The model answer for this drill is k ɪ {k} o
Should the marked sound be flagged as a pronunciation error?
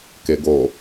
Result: yes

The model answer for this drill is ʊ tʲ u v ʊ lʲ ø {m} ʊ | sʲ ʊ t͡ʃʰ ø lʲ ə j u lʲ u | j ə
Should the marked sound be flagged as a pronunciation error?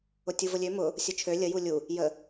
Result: no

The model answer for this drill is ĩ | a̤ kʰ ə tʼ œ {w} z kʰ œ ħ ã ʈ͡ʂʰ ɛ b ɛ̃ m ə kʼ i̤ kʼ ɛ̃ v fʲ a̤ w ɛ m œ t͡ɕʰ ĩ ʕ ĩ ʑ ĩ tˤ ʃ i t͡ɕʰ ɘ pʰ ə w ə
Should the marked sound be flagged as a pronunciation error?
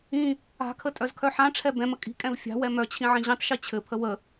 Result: yes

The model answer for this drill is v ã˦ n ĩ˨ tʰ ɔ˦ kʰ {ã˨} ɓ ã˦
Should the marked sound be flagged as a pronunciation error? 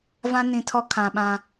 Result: no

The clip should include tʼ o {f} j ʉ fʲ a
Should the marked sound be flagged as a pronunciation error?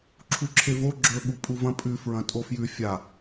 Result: no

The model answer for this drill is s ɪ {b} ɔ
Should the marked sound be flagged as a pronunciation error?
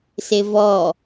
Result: yes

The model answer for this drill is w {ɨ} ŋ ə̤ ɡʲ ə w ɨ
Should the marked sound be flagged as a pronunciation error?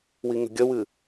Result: yes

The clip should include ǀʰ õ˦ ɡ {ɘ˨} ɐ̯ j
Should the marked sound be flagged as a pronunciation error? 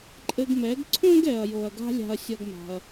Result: yes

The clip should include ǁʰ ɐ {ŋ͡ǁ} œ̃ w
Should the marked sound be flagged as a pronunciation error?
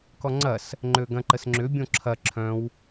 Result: yes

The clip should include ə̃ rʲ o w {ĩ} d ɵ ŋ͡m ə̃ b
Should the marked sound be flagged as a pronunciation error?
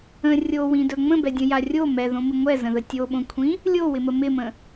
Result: no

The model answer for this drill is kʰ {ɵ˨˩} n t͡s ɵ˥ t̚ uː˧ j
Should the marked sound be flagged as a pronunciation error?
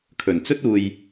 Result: no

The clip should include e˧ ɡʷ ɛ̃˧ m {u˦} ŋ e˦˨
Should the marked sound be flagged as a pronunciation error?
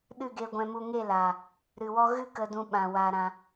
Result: yes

